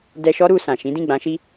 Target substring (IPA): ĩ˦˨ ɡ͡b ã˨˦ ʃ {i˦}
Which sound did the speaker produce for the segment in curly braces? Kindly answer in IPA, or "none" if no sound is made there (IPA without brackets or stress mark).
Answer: i˦